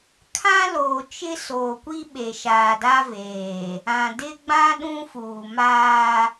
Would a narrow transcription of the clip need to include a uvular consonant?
no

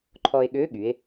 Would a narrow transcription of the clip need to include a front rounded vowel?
yes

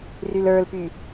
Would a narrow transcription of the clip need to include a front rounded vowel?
yes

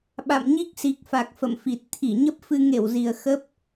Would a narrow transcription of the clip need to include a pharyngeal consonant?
no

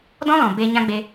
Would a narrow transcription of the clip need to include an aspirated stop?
no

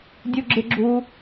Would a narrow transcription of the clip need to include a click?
yes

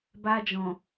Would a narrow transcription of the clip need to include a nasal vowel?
yes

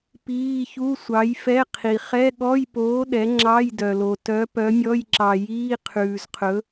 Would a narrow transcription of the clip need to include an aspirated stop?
yes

